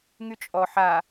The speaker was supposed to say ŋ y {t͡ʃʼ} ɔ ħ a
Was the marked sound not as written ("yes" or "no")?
no